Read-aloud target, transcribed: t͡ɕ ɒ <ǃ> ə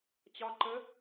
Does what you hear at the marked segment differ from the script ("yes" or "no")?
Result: no